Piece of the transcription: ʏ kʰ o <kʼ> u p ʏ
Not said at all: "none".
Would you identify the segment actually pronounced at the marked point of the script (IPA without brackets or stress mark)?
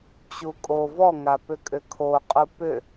qʼ